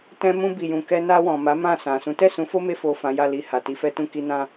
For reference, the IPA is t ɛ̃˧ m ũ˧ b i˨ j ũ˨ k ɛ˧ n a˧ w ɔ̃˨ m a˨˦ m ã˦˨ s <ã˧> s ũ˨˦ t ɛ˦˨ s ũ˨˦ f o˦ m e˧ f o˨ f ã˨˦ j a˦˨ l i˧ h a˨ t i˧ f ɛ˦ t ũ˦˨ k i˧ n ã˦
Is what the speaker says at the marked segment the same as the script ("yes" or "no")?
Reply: no